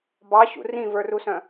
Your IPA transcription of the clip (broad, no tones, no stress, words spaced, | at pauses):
bɑɕṵ rĩvə˞rusœ̃